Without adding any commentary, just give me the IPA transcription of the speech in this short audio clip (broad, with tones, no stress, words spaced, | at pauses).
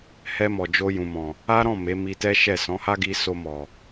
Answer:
hɛ˧ mɔ˨d͡ʒo˧jũ˨mɔ̃˨ | a˦ɾɔ̃˦˨ me˨˦mi˧tɛ˦ʃɛ˦˨ sɔ̃˨˦ha˦ɡi˧ so˧ mɔ˨